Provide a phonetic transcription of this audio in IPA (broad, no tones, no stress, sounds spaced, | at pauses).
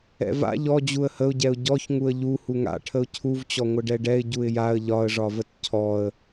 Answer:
ɛ̰ v a̰ ʎ ɔ d͡ʑ u ə̯ h ə ʊ̯ ɟ ɛ ʊ̯ ɟ ɔ ç ŋ u ə̯ ʎ u h u ŋ a̰ ʈʰ ə ʊ̯ cʰ u v t͡ɕ ɔ ŋʷ ə ɖ ɛ ɖ ɛ ɪ̯ ɟ u ɪ̯ j a ə̯ ʎ ɒ ə̯ ʐ ɒ v ə t cʰ ɔ ə̯